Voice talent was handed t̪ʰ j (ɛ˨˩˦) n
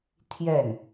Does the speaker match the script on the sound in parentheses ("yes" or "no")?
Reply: no